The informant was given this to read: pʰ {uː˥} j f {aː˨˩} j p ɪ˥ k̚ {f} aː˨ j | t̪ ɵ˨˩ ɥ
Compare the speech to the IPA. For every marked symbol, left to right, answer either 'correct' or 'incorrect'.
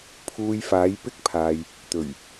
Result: incorrect: uː˧, incorrect: aː˨˥, incorrect: pʰ

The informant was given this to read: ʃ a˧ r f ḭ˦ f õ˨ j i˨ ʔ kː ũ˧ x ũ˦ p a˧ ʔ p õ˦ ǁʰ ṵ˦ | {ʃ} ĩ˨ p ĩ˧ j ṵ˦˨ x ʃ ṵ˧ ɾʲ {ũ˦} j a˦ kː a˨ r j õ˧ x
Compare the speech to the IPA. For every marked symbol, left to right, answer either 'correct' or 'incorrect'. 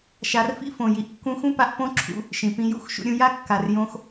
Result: correct, incorrect: ũ˧

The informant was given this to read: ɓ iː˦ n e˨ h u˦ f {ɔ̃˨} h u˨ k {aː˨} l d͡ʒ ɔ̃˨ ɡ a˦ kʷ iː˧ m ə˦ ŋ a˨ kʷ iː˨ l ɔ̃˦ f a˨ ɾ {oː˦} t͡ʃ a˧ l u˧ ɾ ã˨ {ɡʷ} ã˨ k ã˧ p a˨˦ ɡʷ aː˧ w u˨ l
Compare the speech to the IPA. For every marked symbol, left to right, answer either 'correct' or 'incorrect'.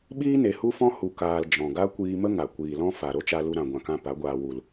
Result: incorrect: ɔ̃˦, correct, incorrect: o˦, correct

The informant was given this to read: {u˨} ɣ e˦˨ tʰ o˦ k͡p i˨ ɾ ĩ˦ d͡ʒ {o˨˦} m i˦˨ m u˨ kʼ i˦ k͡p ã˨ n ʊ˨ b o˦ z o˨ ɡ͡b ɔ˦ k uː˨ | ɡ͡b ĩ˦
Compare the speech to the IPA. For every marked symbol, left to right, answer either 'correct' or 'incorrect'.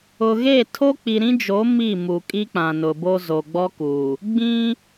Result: incorrect: ʊ˨, correct

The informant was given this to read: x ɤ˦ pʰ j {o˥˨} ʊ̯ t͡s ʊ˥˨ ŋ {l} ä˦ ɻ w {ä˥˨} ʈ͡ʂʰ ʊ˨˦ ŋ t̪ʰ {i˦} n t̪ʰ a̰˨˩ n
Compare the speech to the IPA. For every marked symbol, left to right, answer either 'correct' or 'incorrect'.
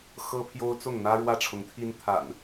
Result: incorrect: o˦, incorrect: n̪, correct, correct

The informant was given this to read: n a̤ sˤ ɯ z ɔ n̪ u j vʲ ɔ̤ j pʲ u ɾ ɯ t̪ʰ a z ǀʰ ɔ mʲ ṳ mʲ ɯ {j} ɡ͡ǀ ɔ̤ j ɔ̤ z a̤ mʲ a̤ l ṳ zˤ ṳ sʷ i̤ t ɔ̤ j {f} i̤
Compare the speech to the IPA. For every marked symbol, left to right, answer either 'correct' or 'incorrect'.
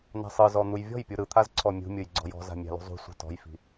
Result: correct, correct

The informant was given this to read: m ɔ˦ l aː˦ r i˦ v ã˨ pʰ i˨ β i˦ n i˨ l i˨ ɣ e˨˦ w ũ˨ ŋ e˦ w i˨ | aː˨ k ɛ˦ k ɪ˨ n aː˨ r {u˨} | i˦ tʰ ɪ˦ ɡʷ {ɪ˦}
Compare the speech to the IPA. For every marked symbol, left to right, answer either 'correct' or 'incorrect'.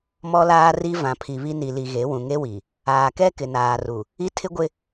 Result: correct, correct

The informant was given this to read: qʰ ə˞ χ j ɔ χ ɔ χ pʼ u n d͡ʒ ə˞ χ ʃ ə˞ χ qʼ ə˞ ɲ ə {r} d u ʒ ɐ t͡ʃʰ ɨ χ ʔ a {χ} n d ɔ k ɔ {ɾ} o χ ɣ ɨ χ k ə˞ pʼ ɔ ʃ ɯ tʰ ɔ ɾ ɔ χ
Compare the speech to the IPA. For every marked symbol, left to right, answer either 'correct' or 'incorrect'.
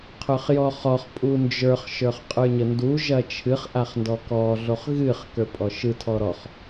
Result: incorrect: n, correct, incorrect: ɮ

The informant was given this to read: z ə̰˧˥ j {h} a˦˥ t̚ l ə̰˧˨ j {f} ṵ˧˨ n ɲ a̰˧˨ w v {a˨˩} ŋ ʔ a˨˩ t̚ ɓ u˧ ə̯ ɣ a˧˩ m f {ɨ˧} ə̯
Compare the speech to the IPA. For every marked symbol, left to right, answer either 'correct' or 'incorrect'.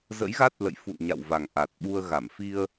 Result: incorrect: ɣ, correct, correct, incorrect: i˧

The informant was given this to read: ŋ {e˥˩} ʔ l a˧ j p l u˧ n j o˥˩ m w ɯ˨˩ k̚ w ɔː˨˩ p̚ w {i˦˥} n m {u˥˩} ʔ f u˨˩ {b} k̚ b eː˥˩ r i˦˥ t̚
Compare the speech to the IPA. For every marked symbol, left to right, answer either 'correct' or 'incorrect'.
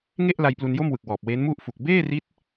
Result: correct, incorrect: e˦˥, correct, incorrect: none

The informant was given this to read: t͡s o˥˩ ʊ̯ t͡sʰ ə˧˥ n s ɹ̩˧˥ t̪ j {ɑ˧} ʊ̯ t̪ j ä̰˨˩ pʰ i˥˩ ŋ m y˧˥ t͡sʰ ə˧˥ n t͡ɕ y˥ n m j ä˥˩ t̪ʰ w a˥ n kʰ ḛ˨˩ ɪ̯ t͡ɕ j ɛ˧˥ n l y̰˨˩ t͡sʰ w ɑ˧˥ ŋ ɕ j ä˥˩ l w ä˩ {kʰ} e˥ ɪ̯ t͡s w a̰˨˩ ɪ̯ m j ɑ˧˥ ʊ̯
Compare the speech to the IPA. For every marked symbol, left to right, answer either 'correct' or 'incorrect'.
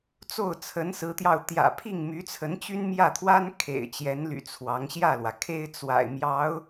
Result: correct, correct

